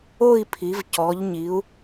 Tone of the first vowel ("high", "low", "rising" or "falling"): falling